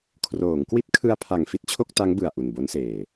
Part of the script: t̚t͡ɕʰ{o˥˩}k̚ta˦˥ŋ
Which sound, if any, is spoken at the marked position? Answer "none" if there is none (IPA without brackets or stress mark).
o˥˩